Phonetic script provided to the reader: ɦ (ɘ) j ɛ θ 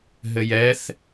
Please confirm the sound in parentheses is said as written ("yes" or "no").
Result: yes